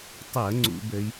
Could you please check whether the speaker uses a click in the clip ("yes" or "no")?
yes